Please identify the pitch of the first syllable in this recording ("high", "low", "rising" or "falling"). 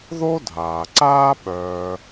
high